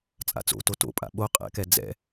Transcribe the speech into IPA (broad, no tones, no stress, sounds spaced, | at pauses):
t͡sʼ a̰ t͡s o̰ t o t o̰ pʼ a̰ ɓ o qʼ ɛ̰ k ɛ d͡z ɛ̰